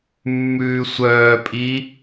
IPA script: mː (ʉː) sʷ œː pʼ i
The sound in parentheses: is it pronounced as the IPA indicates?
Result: yes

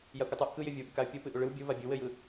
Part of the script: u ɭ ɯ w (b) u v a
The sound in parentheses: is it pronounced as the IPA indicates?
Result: no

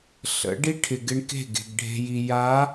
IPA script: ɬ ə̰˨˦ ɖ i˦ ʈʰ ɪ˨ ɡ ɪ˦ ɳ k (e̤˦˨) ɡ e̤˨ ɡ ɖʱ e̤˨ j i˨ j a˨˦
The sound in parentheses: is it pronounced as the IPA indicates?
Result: yes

